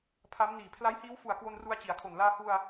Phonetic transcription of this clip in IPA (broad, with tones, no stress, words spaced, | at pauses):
pʰa˦˥m niː˨˩pʰla˦˥jhiː˦˥w fu˨˩a̯kwo˧nru˧a̯ t͡ɕi˨˩a̯kʰo˨˩n laː˧hu˧a̯